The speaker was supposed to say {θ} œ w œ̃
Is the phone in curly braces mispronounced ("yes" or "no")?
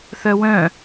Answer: no